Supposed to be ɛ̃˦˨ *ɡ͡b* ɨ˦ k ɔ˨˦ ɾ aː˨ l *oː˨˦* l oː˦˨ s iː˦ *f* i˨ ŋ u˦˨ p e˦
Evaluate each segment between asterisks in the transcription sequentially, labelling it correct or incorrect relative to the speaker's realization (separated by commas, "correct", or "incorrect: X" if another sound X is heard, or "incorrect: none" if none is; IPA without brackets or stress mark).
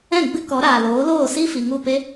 correct, correct, correct